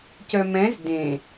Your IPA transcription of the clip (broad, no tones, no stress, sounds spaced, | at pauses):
c œ m ɛ̃ z d ẽ